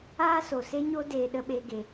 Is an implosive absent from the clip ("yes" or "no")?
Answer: no